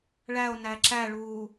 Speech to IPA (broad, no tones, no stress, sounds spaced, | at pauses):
ɭ æ o̯ n æ ǁ æ ɭ uː